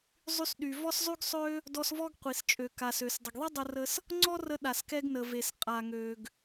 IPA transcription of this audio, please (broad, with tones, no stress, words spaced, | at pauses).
zˤy˧sɗy˩ vɔ˥szˤy˥ɡsˤø˥ | dɔ˧svɔ˥ɡqʷi˩st͡ʃʼø˩ ka˩sø˩s dˤə˩ɡðˤi˥dˤə˧rə˧s | ŋ͡ǀɔ˥rə˧ ɗa˩skɛ˧ɡ nə˩ve˩s qʼa˩ŋø˩ɡ